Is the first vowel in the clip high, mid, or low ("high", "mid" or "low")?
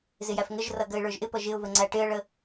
high